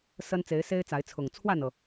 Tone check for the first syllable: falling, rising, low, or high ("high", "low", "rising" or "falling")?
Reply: high